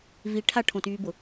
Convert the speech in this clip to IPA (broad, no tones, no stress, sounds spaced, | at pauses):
v i ʈʰ a ʈʰ õ t yː b ʊ